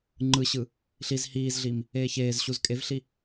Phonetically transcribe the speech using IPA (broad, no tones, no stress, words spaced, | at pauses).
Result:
ŋ͡ǃɯɕɯ | ɬiz hiːzɮiːm | eːçeːzɕuz kʼevɬi